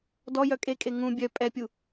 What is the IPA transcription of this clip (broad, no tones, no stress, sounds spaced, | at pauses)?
d ɔ j œ kʼ e kʼ e ŋ ũ bʲ œ pʼ ɛ pʲ u